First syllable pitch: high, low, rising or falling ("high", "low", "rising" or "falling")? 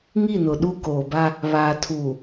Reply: falling